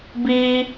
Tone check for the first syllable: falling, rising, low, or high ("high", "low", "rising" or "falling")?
high